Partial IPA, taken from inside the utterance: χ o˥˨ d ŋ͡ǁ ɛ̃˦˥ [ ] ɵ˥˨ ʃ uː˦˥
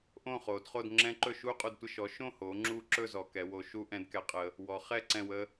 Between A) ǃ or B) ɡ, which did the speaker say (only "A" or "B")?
A